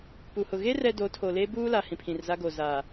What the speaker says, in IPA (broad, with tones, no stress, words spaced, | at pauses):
pu˨hʊ˨ ɣe˦ rɛ˦ do˨˦tʰo˨ le˦buː˦la˨ hĩ˨pʰĩ˨rza˦ɡo˨ zaː˨